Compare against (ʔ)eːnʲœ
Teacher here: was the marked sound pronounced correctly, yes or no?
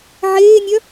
no